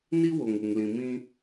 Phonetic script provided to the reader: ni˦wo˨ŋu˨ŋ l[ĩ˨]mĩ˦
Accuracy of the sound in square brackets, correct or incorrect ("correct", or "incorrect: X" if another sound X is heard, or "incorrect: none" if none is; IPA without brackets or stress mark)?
correct